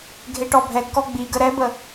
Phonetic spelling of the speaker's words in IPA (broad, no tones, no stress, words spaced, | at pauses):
ɡʱeʈɔbʱɛɡkɔ ɡ͡biɡə ɾɛbə